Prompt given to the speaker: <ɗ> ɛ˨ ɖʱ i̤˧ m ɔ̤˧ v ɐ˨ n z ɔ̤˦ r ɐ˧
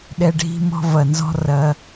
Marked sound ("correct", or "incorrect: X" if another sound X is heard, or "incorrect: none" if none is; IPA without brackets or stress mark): correct